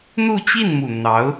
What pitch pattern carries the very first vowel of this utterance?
falling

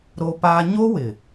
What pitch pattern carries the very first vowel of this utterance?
high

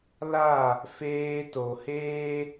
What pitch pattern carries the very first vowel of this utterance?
falling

